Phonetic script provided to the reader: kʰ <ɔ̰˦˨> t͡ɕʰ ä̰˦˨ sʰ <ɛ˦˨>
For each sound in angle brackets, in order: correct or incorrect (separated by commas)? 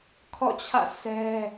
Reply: correct, incorrect